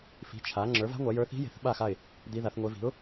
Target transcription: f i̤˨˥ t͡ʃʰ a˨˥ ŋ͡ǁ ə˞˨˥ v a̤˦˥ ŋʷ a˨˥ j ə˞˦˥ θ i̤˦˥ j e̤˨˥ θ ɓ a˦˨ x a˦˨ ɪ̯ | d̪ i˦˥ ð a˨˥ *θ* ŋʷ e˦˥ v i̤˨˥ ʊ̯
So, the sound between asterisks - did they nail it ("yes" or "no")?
yes